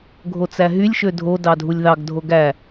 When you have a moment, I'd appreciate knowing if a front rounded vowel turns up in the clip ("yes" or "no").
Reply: yes